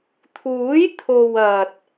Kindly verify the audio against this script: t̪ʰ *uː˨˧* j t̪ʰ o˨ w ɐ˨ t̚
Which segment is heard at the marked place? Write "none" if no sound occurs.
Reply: uː˨˥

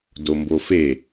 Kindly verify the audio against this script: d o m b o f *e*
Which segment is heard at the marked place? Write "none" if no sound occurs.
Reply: e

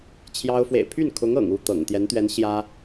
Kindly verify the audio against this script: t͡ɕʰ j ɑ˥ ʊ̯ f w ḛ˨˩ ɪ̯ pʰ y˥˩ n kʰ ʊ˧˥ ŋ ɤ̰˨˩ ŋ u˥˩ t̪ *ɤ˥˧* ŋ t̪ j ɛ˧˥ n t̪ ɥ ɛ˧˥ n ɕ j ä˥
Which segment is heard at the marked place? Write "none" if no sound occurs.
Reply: ɤ̰˨˩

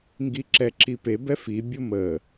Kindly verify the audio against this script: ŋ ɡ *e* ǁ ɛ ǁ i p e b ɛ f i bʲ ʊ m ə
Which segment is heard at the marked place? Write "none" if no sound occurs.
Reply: i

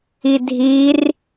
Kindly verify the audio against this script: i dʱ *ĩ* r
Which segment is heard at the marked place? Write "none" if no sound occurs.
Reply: i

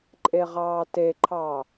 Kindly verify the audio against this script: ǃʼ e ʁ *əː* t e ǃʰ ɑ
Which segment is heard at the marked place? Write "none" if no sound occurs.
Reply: ɑː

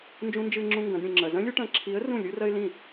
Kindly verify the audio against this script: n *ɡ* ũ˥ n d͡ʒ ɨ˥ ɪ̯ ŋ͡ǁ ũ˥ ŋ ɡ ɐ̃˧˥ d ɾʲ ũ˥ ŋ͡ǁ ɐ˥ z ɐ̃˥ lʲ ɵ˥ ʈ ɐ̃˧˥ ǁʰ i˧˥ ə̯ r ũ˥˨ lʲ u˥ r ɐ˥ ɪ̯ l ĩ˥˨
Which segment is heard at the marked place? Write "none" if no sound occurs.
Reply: d͡ʒ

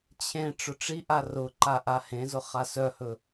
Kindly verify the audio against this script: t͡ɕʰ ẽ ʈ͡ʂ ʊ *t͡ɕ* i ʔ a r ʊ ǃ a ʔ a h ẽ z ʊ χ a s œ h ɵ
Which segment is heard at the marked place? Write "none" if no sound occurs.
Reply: ʈ͡ʂ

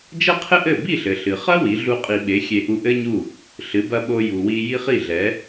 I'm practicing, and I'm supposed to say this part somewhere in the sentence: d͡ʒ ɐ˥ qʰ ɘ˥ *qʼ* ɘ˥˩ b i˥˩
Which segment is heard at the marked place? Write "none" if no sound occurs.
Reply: ʔ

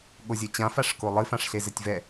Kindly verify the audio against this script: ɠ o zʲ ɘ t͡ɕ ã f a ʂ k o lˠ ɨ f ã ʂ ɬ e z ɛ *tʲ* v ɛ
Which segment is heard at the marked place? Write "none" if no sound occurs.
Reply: tʲ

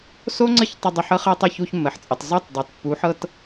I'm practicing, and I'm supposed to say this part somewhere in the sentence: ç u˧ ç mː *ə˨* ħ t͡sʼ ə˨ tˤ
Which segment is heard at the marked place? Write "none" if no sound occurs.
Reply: ə˨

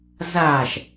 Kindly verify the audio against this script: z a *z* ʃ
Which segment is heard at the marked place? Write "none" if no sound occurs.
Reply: none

